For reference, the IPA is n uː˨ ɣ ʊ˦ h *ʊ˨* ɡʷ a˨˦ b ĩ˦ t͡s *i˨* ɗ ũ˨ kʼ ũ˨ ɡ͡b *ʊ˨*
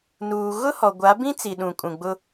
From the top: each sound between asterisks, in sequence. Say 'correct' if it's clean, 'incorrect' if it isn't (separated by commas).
incorrect, correct, incorrect